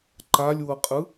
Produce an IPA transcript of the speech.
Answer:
ǃ a lʲ w ɤ qʼ ɯ

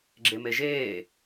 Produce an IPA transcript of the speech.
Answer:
ɡ͡ǁ e m e ʒ eː

